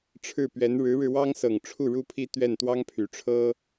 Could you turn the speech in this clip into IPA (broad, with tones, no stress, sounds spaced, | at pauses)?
ʈ͡ʂʰ ɻ̩˥˩ p ɥ ɛ˧˥ n ɻ ɻ̩˧˥ ɻ ɻ̩˧ w ɑ˥ ŋ s ɤ˨˩ ŋ ʈ͡ʂʰ u˥˩ ɻ u˥ pʰ i˥ t̪ ɥ ɛ˥˩ n t̪ w ɑ˥ ŋ pʰ y˨˩ ʈ͡ʂʰ ɤ˥